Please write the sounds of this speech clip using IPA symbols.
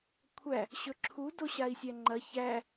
kʷʰæ | ɕɵǁʰu doɕai̯sʲæŋ͡ǃɐ çæ

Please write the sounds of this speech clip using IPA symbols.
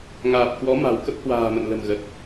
ŋaː˨˩p̚ kwɔ˨˦ma̤˨˩w kə˦˥p̚hwa̤ː˨˩mə̰˧˨n lə̤˨˩mɣə˨˩t̚

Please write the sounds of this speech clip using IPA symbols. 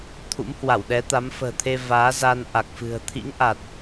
t̪ʰṵ˧˥mhwa˧˩wɗɛ˨˦ t̪a˨˦mfə̤ː˨˩t̪ʰe˧ vaː˨˦za˧nʔa˨˩k̚fɨ̤˨˩ə̯ t̪ʰḭ˧˥ŋʔa˨˩t̚

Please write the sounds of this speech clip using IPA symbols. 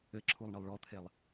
ɘǁʰulˠɳɘlˠ ɭɔt̪ʰelˠ

